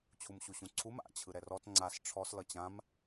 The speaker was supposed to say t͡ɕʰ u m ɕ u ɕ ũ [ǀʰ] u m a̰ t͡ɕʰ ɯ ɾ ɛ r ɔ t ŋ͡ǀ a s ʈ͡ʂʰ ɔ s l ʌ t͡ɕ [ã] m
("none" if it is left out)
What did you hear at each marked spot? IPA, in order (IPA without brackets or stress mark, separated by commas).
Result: ǀʰ, ã